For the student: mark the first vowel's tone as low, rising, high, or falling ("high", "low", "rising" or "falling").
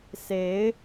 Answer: rising